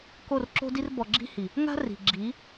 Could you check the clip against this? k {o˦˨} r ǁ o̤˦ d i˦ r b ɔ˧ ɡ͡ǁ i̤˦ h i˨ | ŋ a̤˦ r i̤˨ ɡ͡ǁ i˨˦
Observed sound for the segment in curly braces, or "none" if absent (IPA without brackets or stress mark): o˦˨